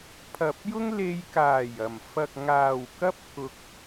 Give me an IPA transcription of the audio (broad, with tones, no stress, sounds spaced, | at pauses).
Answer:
pʰ ɐ˨ p̚ j ʊ˥ ŋ l e˧ j k aː˨˩ j ɐ˨˩ m f ɐ˨ k̚ ŋ aː˨˩ w k ɐ˥ p̚ k ʊ˧ k̚